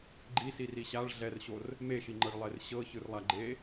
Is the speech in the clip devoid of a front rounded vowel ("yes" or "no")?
yes